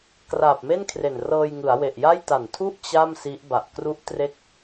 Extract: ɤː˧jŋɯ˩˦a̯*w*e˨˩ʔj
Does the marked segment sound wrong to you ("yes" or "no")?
no